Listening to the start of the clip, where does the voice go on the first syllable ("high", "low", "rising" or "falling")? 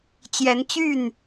rising